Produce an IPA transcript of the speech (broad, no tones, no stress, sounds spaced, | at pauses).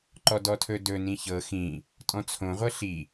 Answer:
ǃ ɔ d ɔ tʰ ɵ d ɵ n ĩ ç ɤ x ĩ | tʼ ɔ̃ t͡sʰ õ ʁʷ ɤ ɬ i